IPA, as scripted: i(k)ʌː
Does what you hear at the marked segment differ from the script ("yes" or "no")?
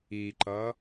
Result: yes